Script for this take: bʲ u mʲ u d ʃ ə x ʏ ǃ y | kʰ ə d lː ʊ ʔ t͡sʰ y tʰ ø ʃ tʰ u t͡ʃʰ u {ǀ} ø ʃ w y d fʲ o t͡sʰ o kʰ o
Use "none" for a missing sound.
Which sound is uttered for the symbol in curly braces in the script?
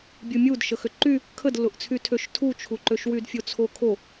ǃ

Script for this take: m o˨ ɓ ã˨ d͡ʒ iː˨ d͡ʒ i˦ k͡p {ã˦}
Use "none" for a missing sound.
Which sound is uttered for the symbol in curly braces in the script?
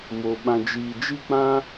ã˦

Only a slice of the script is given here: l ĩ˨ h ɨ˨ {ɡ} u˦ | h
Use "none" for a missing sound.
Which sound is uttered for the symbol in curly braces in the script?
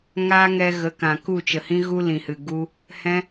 ɡ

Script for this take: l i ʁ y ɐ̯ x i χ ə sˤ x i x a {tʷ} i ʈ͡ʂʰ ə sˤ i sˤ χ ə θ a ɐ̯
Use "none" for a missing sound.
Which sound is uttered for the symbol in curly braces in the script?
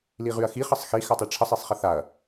tˤ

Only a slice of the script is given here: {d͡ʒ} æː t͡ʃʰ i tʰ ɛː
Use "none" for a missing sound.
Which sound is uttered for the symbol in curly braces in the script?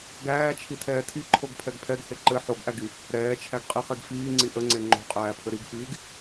ɡ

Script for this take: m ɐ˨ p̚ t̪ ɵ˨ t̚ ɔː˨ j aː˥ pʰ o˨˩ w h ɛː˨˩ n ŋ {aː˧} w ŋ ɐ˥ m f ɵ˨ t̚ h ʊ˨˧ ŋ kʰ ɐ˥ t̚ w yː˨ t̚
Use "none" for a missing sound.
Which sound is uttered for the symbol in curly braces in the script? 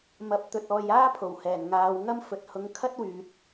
aː˨˧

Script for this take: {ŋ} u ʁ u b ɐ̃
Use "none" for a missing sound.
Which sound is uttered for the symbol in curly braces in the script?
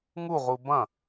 ŋ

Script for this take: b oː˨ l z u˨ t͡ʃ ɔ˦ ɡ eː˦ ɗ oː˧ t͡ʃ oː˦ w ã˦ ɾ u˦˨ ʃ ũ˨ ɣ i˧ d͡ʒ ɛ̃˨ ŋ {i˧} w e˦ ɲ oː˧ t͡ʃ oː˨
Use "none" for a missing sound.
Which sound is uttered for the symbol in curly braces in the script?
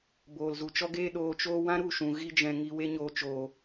i˧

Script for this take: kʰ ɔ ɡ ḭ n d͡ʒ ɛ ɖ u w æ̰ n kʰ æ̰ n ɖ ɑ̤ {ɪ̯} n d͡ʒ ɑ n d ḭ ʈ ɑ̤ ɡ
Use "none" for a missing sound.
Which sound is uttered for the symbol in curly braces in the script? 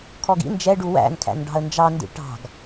ə̯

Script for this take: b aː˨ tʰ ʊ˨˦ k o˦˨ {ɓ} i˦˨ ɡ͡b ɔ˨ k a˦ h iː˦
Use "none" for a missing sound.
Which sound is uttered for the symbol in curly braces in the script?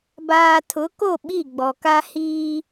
ɓ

